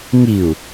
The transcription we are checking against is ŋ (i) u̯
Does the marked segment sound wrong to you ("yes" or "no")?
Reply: no